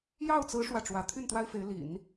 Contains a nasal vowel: no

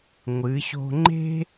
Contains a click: yes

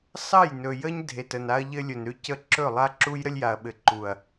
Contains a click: yes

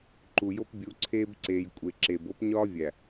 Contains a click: yes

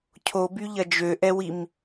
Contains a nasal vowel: no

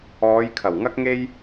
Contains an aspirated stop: yes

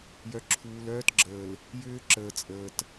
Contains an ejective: yes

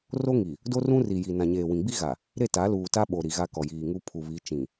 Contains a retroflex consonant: no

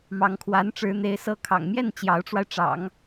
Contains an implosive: no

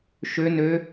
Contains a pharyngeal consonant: no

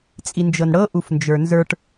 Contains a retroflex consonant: yes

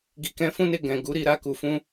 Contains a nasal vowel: yes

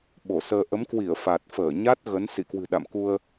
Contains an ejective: no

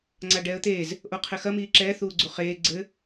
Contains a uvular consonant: yes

